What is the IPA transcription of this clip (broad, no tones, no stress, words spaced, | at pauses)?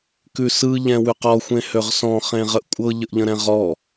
kʉsɯ ʎɛ̃wʉqɔxʷ ẽhøʁsɔ̃ χẽʁəʔkʷʼɤ ʎəʔʎə̃ɾɛ̃ʁɔ